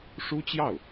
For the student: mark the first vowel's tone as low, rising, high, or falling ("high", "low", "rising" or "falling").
high